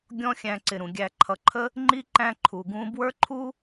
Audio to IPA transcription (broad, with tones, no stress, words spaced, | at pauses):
ɡʲɔ̃˦xʲæ̃˨ǀɪ˩ ɾũ˩ɡʲæ˨ ǃʰʌ˨ǃʰə˥ | ŋ͡ǃi˥ǃæ̃˦ǃʰu˩ ɡũ˦ bwə˞˥ǃʰu˥